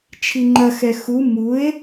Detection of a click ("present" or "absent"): present